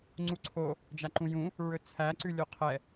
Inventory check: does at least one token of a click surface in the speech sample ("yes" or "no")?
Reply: yes